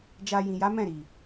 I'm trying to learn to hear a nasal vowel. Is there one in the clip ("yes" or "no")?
yes